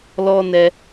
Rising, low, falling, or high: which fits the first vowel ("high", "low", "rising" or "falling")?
high